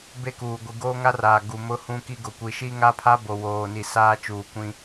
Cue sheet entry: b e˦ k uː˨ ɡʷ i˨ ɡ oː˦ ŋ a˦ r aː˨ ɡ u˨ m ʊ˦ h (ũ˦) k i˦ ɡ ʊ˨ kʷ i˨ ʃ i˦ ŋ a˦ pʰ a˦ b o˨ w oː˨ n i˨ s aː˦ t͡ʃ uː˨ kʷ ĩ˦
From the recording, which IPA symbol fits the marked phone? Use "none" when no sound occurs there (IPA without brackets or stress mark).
ũ˦